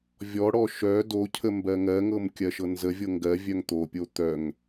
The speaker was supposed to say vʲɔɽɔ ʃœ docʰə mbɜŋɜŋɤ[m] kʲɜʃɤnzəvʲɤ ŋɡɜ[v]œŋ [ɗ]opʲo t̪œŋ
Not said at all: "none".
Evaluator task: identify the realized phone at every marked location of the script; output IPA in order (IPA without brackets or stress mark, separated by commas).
m, vʲ, t̪